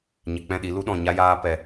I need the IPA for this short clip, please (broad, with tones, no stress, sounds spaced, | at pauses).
ɲ ɛ˨ k͡p ɛ̃˦˨ ɗ i˨˦ l u˦ ɗ ɔ̃˨ ɲ a˦ j aː˦ p ɛ˨